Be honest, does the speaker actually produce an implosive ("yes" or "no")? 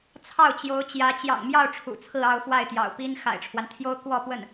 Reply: no